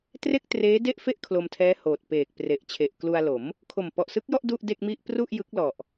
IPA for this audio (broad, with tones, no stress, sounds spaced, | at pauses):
t r e˥˩ k̚ t r eː˦˥ d e˥˩ ʔ f e˥˩ ʔ kʰ l o˧ m tʰ ɛː˦˥ h oː˨˩ t̚ p eː˨˩ k̚ p r e˨˩ ʔ t͡ɕʰ e˨˩ ʔ k l u˧ a̯ l o˩˦ m | kʰ o˨˩ m p ɔ˨˩ ʔ s ɯ˦˥ k̚ j ɔ˥˩ ʔ d u˥˩ ʔ d e˥˩ k̚ m i˥˩ ʔ p r u˥˩ ʔ j ɯ˦˥ k̚ l ɔ˨˩ ʔ